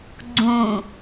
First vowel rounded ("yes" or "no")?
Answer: yes